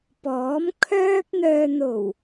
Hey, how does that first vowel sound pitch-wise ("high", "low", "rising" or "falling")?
rising